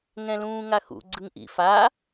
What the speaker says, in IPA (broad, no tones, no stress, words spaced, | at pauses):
ŋɛ̃lũːŋaxṵ ɡ͡ǀɯŋʔḭ fa